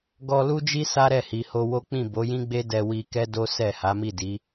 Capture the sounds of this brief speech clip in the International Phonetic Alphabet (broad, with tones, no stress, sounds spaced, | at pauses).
ɡ ɔ˧ l u˦ d͡ʒ i˦ s a˦ ɾ ɛ˦˨ h i˨ h o˧ w o˦ k͡p ĩ˦˨ b o˨˦ j ĩ˦ ɡ͡b e˦ d ɛ˧ w i˧ k ɛ˦ d o˦ s ɛ˦˨ h a˨˦ m i˦˨ d i˨˦